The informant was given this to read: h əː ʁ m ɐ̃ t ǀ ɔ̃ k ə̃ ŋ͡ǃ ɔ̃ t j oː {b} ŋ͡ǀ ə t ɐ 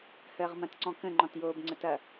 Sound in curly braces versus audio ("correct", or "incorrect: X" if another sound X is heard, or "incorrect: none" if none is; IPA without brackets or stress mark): correct